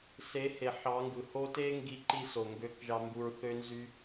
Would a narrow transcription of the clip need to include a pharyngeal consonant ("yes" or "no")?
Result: yes